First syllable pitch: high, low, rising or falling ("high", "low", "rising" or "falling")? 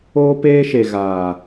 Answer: high